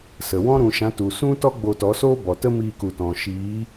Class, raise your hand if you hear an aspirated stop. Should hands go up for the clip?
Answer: no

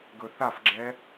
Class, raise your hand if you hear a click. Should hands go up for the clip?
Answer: yes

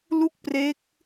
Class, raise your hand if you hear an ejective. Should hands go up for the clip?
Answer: no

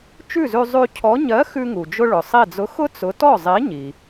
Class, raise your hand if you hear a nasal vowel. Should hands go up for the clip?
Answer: no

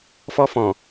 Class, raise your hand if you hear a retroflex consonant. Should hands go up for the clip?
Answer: no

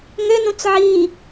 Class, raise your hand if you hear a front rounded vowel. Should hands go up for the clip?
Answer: yes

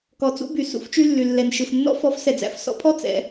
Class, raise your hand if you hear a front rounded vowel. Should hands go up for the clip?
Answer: yes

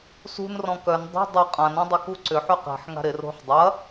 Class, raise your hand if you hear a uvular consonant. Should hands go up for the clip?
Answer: yes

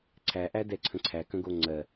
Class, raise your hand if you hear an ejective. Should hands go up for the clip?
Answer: no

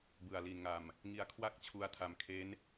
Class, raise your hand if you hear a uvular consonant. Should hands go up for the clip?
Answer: no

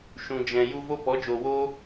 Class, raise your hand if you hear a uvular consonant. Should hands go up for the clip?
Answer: no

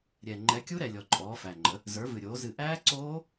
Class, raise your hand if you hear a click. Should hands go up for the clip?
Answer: yes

